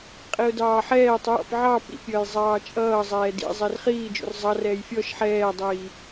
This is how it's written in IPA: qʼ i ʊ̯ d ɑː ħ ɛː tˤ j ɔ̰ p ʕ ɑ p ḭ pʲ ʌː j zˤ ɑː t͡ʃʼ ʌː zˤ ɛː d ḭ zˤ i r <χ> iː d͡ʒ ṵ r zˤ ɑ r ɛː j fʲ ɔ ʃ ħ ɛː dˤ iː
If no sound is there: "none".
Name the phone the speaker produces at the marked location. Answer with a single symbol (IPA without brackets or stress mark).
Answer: χ